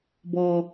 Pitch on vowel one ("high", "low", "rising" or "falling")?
low